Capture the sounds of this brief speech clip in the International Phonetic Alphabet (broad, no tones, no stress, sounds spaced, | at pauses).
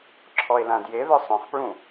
ǁʰ ɔ e̯ l ã d j e ð œ sˤ œ̃ χ p ɹ ũ